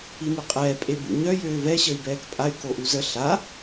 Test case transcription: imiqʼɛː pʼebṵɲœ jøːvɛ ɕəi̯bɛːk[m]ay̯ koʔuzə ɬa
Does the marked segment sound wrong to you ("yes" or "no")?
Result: yes